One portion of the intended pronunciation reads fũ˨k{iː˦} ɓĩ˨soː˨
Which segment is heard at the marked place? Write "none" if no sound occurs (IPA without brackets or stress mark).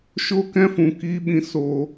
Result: iː˧